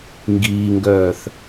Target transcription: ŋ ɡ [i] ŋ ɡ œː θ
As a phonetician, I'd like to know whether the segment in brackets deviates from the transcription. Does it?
yes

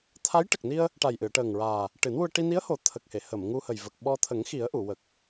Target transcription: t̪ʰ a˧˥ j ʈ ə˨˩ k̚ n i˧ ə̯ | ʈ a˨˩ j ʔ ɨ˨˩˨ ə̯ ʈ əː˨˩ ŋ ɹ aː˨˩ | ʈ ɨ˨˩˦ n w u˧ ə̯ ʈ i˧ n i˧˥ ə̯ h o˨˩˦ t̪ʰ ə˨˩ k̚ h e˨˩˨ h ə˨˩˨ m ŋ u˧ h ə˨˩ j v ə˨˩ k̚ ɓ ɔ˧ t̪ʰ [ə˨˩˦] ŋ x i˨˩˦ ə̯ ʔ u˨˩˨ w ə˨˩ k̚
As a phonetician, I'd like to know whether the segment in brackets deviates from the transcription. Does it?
no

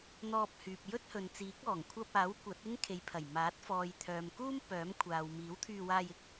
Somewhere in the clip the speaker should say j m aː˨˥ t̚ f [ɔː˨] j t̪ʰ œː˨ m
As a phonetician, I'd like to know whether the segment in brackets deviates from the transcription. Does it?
no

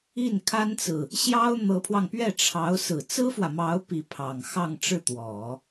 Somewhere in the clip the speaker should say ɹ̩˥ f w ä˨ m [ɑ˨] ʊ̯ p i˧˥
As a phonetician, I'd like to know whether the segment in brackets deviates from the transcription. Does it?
yes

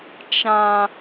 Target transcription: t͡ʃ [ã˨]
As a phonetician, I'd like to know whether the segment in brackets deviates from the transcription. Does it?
yes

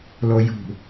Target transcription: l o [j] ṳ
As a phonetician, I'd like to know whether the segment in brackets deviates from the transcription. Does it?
no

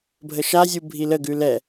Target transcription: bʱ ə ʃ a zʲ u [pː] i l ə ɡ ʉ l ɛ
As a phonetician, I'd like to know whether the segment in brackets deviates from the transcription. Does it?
yes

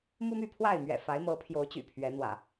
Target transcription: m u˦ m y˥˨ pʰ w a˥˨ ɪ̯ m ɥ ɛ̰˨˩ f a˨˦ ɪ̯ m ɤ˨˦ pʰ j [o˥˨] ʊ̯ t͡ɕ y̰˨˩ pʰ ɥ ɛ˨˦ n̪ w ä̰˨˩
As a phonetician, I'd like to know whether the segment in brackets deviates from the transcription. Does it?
yes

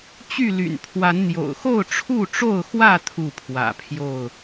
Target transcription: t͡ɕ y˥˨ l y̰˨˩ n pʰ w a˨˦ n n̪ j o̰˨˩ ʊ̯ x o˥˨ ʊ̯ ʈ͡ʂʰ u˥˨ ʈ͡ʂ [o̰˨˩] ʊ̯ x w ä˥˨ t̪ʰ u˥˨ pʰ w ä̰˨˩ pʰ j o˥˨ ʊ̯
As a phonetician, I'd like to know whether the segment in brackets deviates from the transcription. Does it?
yes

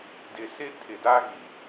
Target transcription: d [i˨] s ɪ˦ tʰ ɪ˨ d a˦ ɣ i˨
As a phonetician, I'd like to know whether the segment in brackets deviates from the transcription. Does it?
yes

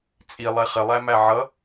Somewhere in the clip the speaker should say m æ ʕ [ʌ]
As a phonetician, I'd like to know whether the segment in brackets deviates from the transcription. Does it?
no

